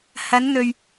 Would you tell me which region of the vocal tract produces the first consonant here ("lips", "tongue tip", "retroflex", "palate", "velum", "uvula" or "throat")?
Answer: throat